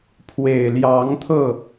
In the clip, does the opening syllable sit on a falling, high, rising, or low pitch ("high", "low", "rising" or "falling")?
low